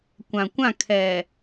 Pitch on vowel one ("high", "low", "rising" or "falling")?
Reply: low